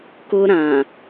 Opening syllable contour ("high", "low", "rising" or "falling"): high